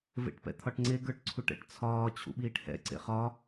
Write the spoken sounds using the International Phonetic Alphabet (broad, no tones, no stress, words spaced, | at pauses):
vḛʈpɛ̰t̪ʰɒʈŋ͡ǀe ɡə˞ʈǀʰuʈɛ̰ʈt͡sʰɒː t͡ɕʰṵɓiːʈhɛ̰ ǀḛχɒ